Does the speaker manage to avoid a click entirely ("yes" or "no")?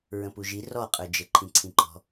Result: no